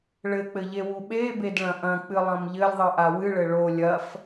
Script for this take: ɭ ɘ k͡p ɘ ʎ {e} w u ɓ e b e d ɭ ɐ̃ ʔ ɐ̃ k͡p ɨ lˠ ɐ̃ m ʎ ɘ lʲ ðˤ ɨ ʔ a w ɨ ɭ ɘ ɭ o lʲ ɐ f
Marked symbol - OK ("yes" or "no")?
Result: yes